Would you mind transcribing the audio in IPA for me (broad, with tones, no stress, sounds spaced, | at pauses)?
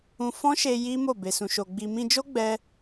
ũ˧ f ɔ̃˦ ʃ e˧ j i˦ m o˦˨ b e˧ s ũ˧ ʃ o˧ ɡ͡b i˧ m ĩ˧ d͡ʒ o˦ ɡ͡b ɛ˦